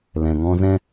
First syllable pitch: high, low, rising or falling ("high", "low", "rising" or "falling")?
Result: low